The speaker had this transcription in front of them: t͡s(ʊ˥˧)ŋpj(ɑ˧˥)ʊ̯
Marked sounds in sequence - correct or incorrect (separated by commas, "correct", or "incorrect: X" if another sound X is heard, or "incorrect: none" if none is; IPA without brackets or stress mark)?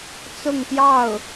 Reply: correct, incorrect: ɑ˥˩